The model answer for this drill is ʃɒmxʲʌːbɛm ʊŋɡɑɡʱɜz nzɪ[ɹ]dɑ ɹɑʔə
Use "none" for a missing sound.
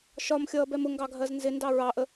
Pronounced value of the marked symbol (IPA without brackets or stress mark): n